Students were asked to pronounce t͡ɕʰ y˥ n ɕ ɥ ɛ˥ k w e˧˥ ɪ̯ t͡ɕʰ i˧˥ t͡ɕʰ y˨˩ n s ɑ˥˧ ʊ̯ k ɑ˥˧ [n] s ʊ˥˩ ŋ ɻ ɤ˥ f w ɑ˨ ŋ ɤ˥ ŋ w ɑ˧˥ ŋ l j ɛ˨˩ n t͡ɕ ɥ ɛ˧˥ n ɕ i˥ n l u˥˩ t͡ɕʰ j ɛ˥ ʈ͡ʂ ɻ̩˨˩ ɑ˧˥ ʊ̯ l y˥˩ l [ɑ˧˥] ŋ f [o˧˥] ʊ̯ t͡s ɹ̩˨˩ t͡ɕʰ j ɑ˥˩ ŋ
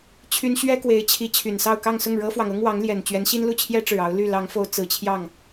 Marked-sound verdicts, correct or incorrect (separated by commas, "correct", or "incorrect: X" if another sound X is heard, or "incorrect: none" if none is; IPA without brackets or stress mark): incorrect: ŋ, correct, correct